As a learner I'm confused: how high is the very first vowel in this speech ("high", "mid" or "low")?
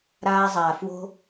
low